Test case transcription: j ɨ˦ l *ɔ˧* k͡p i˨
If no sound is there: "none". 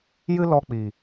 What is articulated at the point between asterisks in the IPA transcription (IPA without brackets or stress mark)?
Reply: ɔ˧